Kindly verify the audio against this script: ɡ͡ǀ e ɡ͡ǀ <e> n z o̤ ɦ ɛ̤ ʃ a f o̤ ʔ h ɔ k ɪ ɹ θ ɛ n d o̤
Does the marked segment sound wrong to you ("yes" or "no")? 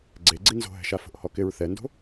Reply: yes